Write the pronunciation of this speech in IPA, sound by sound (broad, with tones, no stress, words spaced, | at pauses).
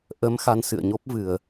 ʔə˨˦m xa˧nsɨ̰˧˨ə̯ɲo˦˥p̚vɨ˨˩ə̯